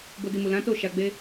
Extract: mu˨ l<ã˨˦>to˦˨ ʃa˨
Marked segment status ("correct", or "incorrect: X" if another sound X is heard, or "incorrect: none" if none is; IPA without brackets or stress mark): correct